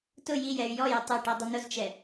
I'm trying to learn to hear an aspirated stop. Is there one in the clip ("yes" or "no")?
no